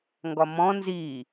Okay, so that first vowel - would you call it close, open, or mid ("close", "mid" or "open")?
open